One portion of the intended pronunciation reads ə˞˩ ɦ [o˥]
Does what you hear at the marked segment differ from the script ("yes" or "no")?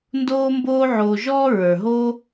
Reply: no